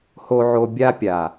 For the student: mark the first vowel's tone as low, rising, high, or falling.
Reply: low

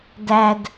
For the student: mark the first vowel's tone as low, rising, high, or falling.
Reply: high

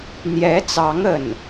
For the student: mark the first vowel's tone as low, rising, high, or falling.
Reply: rising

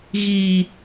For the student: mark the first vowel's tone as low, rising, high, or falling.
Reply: low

